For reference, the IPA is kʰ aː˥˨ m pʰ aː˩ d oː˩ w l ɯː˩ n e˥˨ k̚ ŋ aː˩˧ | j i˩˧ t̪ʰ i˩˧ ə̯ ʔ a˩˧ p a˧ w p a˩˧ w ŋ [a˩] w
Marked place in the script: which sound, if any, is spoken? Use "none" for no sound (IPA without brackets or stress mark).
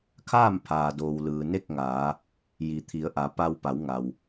a˩